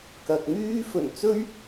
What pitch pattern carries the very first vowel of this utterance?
low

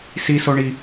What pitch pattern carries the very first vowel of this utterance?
low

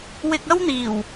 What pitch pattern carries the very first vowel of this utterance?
low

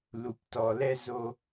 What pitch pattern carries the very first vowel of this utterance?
low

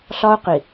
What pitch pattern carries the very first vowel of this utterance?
high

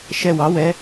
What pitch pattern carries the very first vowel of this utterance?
falling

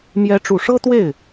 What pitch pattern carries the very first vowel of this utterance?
rising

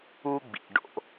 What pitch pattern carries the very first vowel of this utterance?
high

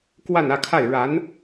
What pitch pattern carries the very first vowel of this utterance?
falling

